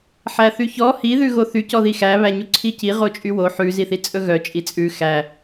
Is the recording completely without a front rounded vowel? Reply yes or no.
no